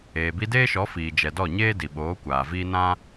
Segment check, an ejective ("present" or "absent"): absent